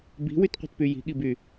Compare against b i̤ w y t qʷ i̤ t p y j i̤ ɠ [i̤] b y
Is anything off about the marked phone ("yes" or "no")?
yes